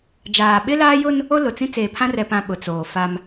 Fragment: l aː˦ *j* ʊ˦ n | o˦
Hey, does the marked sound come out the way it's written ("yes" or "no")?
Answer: yes